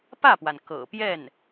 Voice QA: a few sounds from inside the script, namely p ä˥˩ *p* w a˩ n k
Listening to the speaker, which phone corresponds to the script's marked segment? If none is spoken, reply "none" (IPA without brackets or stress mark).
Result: p